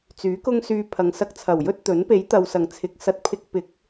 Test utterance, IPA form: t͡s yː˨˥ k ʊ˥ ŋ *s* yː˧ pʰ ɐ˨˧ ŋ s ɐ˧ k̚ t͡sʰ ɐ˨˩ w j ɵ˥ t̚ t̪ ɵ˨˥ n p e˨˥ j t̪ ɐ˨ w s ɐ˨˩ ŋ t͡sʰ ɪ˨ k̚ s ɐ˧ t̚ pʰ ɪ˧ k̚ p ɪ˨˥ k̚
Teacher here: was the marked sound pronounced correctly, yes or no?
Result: yes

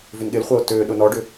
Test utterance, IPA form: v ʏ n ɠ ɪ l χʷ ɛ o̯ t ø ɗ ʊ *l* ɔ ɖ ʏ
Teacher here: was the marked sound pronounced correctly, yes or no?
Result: no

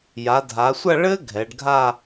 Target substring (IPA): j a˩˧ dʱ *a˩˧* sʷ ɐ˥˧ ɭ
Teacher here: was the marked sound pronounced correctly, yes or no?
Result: yes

